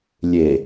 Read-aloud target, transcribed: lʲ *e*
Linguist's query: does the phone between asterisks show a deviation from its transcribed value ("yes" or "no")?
no